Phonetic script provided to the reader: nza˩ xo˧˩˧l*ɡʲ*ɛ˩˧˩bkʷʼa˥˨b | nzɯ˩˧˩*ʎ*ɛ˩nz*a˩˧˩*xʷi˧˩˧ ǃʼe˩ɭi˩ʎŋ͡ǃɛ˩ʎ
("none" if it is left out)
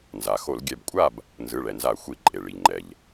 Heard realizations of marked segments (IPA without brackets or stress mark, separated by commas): ɡʲ, ɭ, a˧˩˧